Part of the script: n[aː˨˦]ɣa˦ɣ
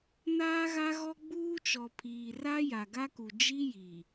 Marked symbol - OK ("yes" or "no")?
no